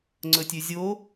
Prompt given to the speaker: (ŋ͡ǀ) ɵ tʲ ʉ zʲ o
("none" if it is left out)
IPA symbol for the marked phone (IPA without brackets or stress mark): ŋ͡ǀ